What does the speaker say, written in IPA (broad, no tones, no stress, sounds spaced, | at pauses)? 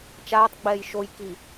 t͡ʃ aː tˤ ɡ͡b ɛː j ʃ o j k i